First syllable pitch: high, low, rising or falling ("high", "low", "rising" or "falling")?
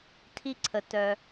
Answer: high